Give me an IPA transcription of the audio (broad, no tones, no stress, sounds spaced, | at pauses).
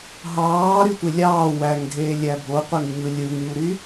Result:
ɦ ɑː ɾ y tʷ e lʲ ɑː w æ ŋ dʱ eː lʲ æ bʱ o qʷ e ŋ ɲ ɯ lʲ ɯ ŋ ɲ u ɾ y